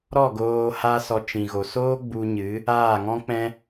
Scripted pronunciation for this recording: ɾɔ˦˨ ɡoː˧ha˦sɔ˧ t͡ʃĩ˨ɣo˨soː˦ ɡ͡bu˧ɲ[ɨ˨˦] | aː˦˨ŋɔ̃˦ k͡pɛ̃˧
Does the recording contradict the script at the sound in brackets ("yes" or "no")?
no